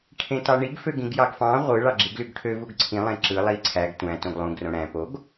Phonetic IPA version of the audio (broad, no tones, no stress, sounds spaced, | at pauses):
ʈʰ ẽ t ɑ ɳ i ɡ f ø ɡ ĩ ɡ j ɑ ɡ f ɑ̃ ʁʷ ɯ ɭ ɑ ɡ͡ǁ i ɡ l y ɡ ʈʰ ø v u ɡ ǀʰ ĩ lˠ ẽ ǁ ɯ lˠ i ǀʰ æ ɡ tʷ æ̃ t õ ɡ lˠ ũ ɡ r õ ɽ æ̃ p o ɡ